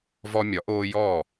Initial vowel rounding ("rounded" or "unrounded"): rounded